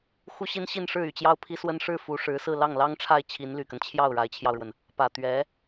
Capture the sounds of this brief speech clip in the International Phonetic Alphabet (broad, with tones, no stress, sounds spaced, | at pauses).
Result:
x u˥ ɕ i˥ n ɕ i˥˧ n ʂ ɻ̩˥˩ y˨˩ t͡ɕ j ɑ˥ ʊ̯ pʰ i˥ s w ə˥ n ʂ ɻ̩˥˩ f u˧˥ ʂ ɻ̩˧˥ s ɹ̩˥˧ l ɑ˥˩ ŋ l ɑ˥ ŋ ʈ͡ʂʰ a˥˩ ɪ̯ t͡ɕʰ i˧˥ n l y˨˩ k ə˦ n t͡ɕʰ j ɑ˥˩ ʊ̯ ɻ a˧˥ ɪ̯ t͡ɕʰ j ɑ˧ ʊ̯ ɻ w ə˩ n | p ä˨˩ t̪ ɥ ɛ˧˥